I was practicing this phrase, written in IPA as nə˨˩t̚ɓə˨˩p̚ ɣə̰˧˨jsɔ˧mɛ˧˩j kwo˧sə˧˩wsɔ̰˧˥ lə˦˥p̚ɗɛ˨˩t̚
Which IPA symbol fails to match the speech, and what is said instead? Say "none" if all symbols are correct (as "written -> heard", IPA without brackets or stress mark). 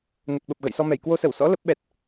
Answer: ɗ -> ɓ